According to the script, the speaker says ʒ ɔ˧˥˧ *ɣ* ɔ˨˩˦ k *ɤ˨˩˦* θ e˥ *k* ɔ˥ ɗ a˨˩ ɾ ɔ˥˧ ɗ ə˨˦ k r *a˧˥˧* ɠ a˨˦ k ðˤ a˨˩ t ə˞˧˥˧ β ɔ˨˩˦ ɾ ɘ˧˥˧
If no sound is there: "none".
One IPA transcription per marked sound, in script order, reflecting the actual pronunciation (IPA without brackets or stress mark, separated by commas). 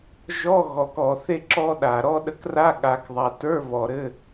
ɣ, ɔ˨˩˦, ǁ, a˧˥˧